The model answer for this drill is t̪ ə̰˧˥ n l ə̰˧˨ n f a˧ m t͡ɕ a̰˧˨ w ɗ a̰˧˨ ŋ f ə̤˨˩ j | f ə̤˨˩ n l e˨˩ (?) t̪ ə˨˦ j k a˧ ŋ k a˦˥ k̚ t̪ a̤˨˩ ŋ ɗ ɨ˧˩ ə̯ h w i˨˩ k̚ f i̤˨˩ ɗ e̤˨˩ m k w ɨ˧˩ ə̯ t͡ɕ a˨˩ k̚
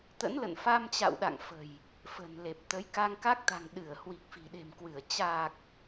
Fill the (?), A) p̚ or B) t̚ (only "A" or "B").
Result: A